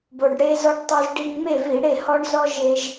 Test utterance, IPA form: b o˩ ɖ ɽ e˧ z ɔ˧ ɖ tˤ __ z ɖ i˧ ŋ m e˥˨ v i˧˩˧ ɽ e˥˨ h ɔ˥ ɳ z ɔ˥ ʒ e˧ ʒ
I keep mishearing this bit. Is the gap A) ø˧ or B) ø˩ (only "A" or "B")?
A